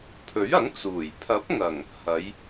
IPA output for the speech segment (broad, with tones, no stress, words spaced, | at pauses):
pʰɵ˨˥ɥɐ˨˥ŋ t͡suː˨˩j pʰɐ˨˥p̚ ŋɐ˨˩ŋ | hɐ˨˧j